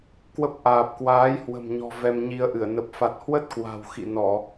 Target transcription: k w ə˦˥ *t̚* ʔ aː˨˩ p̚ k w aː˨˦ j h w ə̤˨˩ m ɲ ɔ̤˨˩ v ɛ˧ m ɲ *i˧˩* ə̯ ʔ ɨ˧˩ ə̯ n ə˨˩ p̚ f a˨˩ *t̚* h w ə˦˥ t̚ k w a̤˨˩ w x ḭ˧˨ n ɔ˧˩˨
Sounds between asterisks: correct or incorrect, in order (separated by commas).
incorrect, incorrect, correct